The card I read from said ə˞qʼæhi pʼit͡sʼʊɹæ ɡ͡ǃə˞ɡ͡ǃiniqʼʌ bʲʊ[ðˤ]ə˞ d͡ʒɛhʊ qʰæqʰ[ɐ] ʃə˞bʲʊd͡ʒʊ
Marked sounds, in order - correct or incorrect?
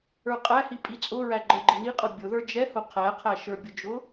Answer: incorrect: ð, incorrect: æ

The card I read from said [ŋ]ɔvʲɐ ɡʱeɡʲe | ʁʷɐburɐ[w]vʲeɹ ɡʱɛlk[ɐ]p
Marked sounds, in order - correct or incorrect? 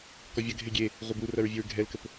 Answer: incorrect: k, incorrect: ɹ, incorrect: ə

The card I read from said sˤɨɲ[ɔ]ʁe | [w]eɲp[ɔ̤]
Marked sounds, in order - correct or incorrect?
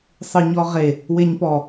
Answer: correct, correct, incorrect: ɔ

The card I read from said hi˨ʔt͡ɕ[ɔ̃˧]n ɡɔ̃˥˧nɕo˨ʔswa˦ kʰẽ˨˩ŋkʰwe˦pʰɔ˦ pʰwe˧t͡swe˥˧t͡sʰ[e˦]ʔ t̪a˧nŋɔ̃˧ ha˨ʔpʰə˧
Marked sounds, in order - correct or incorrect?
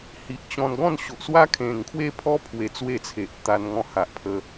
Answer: correct, incorrect: e˨

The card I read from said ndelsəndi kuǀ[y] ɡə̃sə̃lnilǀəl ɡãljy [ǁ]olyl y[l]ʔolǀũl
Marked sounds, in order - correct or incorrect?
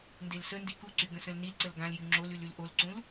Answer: correct, incorrect: ŋ͡ǁ, correct

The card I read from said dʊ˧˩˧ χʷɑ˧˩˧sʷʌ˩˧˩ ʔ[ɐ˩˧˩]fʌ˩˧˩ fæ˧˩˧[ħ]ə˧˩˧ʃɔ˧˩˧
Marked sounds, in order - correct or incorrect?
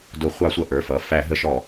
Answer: incorrect: ə˞˩˧˩, incorrect: ɦ

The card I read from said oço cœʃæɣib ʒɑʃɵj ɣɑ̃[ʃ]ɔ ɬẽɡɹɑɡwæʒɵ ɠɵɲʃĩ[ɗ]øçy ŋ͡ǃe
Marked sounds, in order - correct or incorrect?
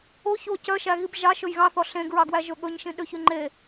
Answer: incorrect: θ, correct

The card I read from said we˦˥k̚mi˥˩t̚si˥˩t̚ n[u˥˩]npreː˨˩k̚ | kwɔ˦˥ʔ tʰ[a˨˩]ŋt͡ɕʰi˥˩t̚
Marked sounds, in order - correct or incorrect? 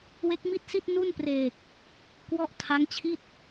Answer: correct, incorrect: a˦˥

